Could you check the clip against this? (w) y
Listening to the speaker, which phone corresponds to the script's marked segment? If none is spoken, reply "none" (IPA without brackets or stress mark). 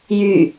j